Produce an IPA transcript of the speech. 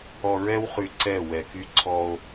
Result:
ɔ˨ ɹ ɛ˦ w χ y˨ ǀ ɛ˦˨ w ɛ˨ k y˦ ǀʰ ɔ˦ o̯

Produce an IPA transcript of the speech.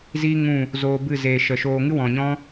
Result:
z i˦ ŋ ũ˦˨ | z oː˧ b ɨ˦˨ z eː˨ ʃ ə˨ ʃ oː˧ ŋ ɨ˦ w ɔ̃˨ ɲ ɔ̃˦

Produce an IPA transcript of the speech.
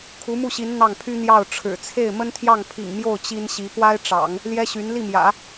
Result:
kʰ u˧˥ m u˥˩ ɕ i˧˥ n n̪ ɑ˥˩ ŋ pʰ y˥ n̪ j ɑ˥˩ ʊ̯ ʈ͡ʂʰ ɻ̩˨˩ t͡sʰ e˥˩ ɪ̯ m ə˥ n t̪ʰ j ɑ˥˩ ŋ pʰ ḭ˨˩ ŋ m j o˥˩ ʊ̯ t͡ɕ i˥ n ɕ i˧˥ p w a˥ ɪ̯ ʈ͡ʂ ɑ̰˨˩˦ ŋ | l j ɛ˥ ɕ y˧˥ n l i˥˩ m j ä̰˨˩˦

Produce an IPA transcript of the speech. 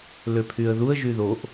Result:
l ø pʰ y ə̯ ð u ə̯ ʒ y ð o ʔ

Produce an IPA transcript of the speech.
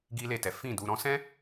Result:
ɡ i˦ l e˦˨ t ɛ˨˦ f ĩ˦˨ d u˧ ɾ ɔ̃˦ s ɛ̃˦

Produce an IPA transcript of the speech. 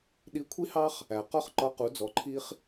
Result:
ɗ i˧˥ kʷʰ i˥ h ɑ˥ χ | æ˩ q ɔ˥ χ ǃ ɒ˧˥ q u˩˧ d͡z ɔ˩˧ ǃʰ i˧ χ

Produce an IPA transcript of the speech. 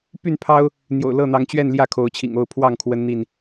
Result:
p y˥˨ n pʰ ɑ˦ ʊ̯ | n̪ j o̰˨˩ ʊ̯ l ɤ˥˨ n̪ ɑ˨˦ ŋ t͡ɕ ɥ ɛ˥˨ n l j ä˥˨ kʰ o˨˦ ʊ̯ t͡ɕʰ ḭ˨˩ ŋ o˥˨ ʊ̯ pʰ w ɑ˥˨ ŋ kʰ w ə˦ n n̪ i˥˨ n

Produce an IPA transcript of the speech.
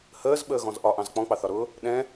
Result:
h əː z ɓ əː ɣ ɔ̃ z ʔ ɒ ʔ ɑ̃ z k͡p ɔ̃ k͡p ɑ θ ɒ ɾ ʊː | ɗ ɛ̃

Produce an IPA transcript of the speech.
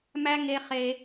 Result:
m æ˦ ŋ e˧ χ e˧

